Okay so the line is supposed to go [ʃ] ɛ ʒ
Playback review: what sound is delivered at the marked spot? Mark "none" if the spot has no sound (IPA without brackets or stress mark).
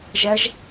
ʒ